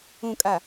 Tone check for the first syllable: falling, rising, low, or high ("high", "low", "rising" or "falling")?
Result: low